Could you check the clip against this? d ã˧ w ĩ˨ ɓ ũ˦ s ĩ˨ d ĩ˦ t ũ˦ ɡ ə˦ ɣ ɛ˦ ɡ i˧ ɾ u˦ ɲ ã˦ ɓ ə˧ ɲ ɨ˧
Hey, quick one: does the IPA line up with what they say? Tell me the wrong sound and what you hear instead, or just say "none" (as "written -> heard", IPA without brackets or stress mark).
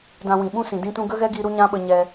ɨ˧ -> ɛ˧